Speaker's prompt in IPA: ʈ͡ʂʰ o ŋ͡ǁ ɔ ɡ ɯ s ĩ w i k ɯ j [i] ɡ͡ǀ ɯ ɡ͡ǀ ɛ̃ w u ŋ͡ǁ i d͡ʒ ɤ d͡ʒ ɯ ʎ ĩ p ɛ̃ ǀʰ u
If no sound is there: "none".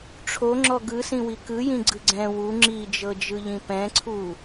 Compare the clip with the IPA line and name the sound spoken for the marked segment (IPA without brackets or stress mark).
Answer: ĩ